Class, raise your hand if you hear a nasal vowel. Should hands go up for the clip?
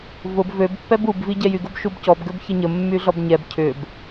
no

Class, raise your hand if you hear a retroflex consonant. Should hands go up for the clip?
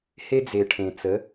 yes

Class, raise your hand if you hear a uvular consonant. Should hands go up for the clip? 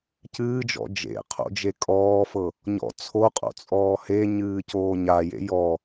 yes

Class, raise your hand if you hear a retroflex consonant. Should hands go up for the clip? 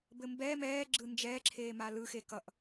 no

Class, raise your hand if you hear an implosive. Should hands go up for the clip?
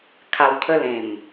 no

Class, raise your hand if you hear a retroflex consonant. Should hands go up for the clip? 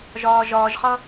no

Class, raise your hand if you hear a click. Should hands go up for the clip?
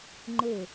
yes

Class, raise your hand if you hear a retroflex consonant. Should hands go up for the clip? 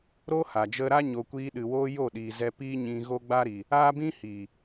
no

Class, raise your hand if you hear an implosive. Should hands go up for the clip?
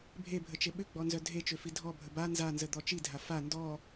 yes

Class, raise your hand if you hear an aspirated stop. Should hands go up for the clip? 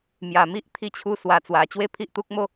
yes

